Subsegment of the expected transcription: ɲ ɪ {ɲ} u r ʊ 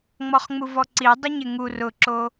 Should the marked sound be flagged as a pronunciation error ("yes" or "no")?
yes